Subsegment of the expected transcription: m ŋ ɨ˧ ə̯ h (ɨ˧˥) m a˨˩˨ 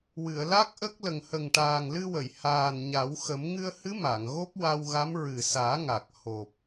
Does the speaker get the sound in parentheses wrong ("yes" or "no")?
no